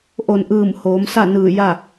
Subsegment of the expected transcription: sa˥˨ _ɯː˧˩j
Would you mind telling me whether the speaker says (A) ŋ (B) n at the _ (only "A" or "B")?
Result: B